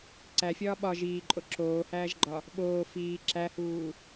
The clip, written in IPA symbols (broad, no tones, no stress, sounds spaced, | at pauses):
ǀ æ fʲ ɒː ɓ ɒ ʒ iː ǃʼ o ǁ oː h æː ʒ ɡ͡ǃ ɒ | ɓ oː f iː ǁ æ h uː